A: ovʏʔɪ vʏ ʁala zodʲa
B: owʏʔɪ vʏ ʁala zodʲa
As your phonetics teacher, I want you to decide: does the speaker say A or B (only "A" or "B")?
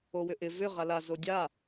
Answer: B